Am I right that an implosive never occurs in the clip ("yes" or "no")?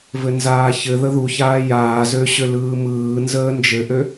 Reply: yes